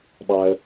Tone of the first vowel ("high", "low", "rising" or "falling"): low